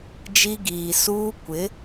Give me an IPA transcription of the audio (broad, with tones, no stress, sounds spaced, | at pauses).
d͡ʒ i˦ ɡ iː˨ s uː˦ kʷ ɪ˨˦